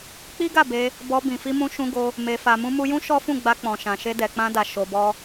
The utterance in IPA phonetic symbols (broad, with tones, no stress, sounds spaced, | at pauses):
k͡p i˦ ɡ a˦˨ b e˧ | b ɔ˧ b ĩ˨ f i˧ m ũ˧ ʃ ũ˧ ɡ o˧ | m e˨ f a˨ m ũ˧ m u˧ j ũ˦ ʃ ɔ˦ f ũ˦˨ ɡ͡b a˧ k͡p ɔ̃˨ ʃ ã˨ ʃ e˧ d ɛ˨ k͡p ã˧ d a˨ ʃ o˧ b ɔ˦